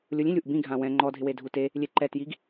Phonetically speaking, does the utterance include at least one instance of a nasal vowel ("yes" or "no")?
yes